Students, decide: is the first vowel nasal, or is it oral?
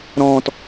nasal